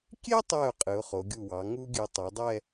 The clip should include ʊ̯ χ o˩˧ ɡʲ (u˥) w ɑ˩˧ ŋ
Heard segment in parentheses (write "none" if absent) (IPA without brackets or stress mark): u˧˩